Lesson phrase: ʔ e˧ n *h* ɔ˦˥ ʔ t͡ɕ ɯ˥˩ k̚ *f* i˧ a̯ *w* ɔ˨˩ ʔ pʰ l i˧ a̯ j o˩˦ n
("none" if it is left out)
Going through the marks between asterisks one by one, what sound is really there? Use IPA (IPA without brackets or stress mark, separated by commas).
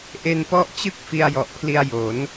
p, f, j